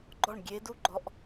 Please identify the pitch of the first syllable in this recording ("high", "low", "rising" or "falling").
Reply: falling